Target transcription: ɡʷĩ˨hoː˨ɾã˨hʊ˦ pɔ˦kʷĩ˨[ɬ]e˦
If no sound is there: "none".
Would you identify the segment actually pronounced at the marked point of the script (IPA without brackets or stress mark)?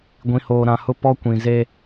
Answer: z